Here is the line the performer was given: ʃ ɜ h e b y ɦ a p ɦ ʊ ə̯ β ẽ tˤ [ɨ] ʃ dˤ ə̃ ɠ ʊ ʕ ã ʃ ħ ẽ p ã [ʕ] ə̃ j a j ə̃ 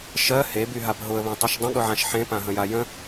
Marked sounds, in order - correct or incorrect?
correct, incorrect: ɦ

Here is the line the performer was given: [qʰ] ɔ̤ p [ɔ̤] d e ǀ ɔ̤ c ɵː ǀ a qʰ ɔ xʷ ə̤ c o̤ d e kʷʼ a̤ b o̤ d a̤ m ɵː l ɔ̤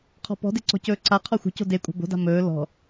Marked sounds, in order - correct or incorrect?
correct, correct

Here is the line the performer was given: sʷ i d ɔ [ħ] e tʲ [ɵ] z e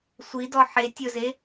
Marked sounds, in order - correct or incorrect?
correct, correct

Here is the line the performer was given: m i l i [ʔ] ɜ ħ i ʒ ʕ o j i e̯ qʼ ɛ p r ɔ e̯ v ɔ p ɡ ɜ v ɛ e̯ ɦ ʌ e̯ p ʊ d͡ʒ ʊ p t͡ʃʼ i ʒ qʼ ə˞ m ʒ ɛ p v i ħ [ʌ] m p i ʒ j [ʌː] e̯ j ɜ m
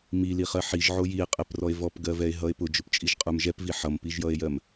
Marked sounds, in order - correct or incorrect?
incorrect: χ, correct, incorrect: ʌ

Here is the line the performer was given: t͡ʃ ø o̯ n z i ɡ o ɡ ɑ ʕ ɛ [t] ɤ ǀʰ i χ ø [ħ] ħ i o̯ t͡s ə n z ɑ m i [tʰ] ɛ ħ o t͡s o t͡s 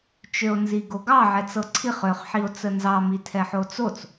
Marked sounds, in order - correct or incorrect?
incorrect: t͡s, incorrect: χ, correct

